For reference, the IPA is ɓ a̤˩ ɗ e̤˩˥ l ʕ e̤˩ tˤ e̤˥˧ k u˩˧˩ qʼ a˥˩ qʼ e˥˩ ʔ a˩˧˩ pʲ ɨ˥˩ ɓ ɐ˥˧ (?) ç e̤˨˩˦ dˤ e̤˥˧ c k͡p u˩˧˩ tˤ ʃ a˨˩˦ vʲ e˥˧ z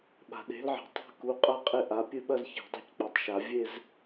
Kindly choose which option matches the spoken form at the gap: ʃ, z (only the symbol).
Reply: z